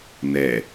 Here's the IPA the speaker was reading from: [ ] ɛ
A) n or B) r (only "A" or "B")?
A